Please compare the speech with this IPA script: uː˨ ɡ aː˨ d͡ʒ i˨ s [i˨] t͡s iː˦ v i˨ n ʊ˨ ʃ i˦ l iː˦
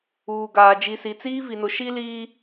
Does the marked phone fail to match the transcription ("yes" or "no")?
no